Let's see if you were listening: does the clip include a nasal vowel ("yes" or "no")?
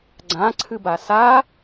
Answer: yes